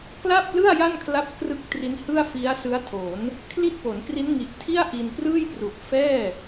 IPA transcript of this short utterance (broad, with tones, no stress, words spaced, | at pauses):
kla˥˩p̚lɯ˥˩a̯ ja˥˩nkʰla˦˥p̚krɯ˦˥k̚ tri˦˥nhɯ˥˩a̯fi˦˥a̯sɯ˦˥a̯ tʰo˩˦n | kʰli˥˩t̚fo˩˦nkri˦˥nŋi˨˩ʔ tʰi˥˩a̯ ʔi˧nprɯː˥˩jpru˨˩k̚ fɛː˥˩